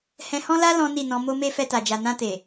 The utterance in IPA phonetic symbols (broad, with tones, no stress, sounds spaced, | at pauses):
h ɛ̃˧ h ɔ̃˦ l a˦ l ɔ̃˦ n i˦˨ n ɔ̃˧ m o˦ m e˦ f ɛ˧ t a˨ d͡ʒ a˨ n ã˧ t e˨